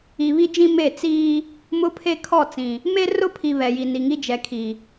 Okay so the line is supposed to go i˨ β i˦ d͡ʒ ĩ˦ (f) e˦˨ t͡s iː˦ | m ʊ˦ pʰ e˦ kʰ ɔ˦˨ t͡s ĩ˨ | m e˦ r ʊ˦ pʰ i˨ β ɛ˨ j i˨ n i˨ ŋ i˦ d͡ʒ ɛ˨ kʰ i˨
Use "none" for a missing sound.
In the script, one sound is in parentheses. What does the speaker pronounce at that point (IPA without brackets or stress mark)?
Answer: m